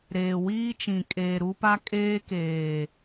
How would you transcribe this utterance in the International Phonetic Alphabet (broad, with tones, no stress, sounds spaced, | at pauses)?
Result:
ɾ eː˨ w iː˦ t͡ʃ ĩ˨ kʼ eː˨ ɾ u˦ p a˦ kʼ eː˦ k eː˨